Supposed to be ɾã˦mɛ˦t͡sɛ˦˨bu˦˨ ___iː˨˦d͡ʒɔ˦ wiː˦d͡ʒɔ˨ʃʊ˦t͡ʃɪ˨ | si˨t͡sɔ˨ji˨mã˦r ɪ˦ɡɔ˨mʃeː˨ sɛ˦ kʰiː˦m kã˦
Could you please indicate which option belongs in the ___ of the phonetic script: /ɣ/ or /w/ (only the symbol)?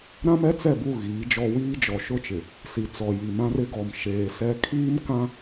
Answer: ɣ